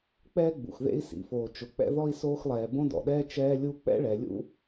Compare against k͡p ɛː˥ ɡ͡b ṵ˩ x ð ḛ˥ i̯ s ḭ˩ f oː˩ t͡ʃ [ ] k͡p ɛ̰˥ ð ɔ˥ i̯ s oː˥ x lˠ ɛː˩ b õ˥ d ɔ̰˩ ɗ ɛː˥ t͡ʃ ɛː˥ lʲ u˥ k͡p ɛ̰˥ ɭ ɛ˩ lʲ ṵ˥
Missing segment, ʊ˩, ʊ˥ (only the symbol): ʊ˩